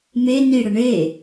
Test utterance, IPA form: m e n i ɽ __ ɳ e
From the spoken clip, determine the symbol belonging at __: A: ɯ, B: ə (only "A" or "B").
B